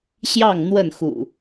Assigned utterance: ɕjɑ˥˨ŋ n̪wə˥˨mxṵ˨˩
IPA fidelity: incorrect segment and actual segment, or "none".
m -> n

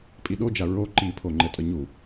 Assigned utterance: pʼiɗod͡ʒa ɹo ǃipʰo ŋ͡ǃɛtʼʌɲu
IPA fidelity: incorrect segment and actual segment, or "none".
none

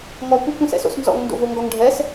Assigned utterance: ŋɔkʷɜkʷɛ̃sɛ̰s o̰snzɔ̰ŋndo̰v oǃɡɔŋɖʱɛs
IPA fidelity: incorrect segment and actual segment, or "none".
ǃ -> ŋ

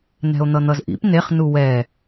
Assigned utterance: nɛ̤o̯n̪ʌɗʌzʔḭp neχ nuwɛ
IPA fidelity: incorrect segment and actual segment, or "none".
ɗ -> n̪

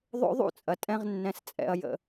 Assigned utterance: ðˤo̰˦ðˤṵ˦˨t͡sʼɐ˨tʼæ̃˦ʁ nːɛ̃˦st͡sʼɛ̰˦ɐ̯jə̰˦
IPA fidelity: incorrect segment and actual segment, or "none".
æ̃˦ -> ɛ̃˦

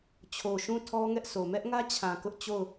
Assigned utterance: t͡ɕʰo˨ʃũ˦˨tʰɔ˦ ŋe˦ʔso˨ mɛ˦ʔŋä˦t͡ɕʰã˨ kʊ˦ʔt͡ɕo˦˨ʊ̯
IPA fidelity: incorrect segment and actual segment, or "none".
e˦ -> ɛ˦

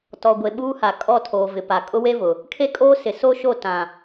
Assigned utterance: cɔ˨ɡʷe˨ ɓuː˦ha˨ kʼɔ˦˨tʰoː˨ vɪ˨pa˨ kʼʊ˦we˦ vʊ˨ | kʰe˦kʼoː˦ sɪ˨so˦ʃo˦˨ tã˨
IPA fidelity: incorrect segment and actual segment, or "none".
c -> t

